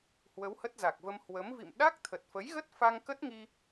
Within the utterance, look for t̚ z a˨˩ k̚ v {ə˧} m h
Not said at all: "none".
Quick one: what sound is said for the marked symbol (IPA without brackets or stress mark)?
ə˧